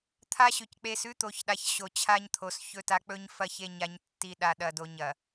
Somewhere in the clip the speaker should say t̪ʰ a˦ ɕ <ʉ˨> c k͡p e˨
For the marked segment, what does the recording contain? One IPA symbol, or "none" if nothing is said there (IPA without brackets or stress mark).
ʉ˨